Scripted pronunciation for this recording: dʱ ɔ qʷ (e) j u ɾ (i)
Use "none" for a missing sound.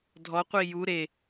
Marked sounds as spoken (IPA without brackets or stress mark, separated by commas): i, e